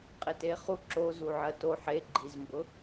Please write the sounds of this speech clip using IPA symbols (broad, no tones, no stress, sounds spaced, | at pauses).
qʼ e t e χ u ǁ o z u ʕ ɜ t o ħ e ɡ͡ǃ i z m b ʊ